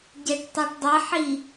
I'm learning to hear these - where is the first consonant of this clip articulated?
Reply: palate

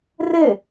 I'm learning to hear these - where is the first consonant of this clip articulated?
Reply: tongue tip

